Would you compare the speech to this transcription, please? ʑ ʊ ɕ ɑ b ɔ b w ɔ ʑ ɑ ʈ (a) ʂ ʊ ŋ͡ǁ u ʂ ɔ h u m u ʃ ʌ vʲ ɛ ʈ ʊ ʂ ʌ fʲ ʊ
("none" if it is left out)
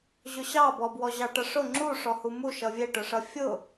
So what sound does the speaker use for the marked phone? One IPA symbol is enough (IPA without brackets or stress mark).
ʌ